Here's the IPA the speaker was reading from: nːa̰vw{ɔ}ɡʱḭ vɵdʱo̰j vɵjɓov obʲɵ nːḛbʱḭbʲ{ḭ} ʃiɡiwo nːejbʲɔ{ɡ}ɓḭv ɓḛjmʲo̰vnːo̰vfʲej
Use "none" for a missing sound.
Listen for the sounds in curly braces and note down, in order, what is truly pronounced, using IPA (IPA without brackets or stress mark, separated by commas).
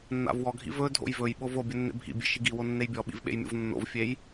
ɔ, ḛ, none